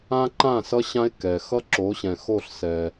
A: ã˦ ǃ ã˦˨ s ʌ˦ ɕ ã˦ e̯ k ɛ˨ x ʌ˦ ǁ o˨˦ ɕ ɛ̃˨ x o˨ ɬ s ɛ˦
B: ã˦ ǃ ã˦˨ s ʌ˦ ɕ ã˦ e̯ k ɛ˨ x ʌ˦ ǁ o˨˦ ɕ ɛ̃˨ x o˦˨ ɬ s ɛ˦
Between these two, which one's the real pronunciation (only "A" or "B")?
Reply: B